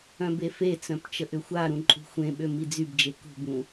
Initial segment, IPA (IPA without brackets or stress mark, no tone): œ̃